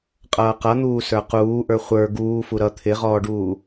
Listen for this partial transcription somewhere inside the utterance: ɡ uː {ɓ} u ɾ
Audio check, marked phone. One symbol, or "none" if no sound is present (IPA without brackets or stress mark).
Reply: f